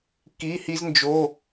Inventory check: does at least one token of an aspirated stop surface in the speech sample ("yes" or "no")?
no